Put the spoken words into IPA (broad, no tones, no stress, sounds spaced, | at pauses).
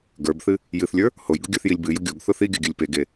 ɡ ə˞ b θ ɨ | j ɨ θ lʲ ə˞ | h o j ɡ ʊ ɡʲ ə˞ θ j i lʲ b ɨ j ʊ ɡʲ o ɡ θ ʊ θ i ɡʲ ə ɡʲ ɨ lʲ p e ɡ e